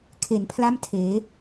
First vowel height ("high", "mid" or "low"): mid